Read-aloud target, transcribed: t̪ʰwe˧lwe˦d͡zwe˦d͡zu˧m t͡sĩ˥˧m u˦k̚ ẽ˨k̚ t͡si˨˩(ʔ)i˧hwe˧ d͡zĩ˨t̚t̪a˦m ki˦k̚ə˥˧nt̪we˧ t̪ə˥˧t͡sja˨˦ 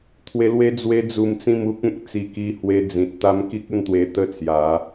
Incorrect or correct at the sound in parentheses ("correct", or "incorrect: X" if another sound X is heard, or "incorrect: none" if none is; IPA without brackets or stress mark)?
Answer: incorrect: k